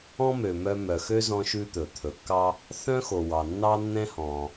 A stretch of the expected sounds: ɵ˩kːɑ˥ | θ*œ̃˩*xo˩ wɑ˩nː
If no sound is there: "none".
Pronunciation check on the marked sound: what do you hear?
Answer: œ̃˥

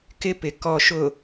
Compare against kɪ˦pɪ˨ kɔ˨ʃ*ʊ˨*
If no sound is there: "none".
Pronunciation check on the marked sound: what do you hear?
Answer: ʊ˨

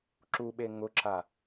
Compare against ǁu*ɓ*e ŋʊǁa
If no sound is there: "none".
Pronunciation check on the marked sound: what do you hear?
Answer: ɓ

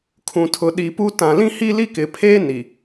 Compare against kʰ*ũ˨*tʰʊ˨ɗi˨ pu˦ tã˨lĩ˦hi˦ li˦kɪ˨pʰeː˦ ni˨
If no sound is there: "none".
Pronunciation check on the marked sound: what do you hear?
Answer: ũ˨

